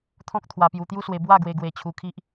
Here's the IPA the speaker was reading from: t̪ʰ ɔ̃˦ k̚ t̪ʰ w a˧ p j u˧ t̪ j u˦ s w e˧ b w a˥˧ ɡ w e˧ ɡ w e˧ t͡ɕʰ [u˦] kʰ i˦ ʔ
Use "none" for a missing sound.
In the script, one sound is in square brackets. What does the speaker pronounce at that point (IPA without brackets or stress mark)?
u˧